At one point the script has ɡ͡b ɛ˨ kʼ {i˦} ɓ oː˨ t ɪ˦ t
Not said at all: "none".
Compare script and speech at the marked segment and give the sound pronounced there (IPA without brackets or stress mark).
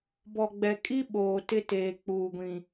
i˦